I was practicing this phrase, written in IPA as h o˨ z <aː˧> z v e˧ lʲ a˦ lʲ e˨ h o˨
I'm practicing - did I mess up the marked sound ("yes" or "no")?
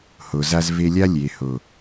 yes